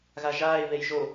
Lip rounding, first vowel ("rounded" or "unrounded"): unrounded